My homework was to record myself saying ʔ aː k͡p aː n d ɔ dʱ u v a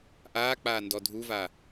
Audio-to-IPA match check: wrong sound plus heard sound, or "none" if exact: none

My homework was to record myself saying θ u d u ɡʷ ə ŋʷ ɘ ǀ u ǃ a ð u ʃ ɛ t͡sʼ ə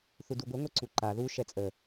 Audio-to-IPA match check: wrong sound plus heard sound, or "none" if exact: ɘ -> ɛ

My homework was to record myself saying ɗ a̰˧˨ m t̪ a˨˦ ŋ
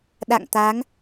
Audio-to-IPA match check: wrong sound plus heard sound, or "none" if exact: m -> ŋ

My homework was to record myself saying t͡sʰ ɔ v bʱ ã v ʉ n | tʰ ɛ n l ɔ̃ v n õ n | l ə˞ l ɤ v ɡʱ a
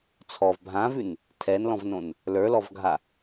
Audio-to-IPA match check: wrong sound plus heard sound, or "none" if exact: ɤ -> ɔ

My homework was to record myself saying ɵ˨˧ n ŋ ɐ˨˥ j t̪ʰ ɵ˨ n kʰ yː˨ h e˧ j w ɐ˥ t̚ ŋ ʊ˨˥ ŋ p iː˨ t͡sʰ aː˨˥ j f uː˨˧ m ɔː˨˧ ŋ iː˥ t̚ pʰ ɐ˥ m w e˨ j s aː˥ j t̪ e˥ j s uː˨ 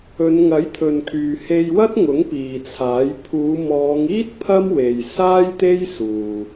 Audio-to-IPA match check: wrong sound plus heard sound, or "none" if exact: f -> pʰ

